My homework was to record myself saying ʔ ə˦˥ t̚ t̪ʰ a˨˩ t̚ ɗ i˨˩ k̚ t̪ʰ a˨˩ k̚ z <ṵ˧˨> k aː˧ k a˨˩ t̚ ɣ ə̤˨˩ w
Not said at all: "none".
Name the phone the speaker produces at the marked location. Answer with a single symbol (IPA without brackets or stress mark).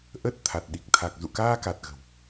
ṵ˧˨